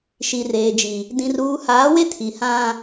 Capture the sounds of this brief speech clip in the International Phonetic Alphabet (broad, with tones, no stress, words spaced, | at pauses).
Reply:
ʃi˨reː˨d͡ʒi˨ | dĩ˨ruː˨haː˨˦we˦ tʰi˨hã˦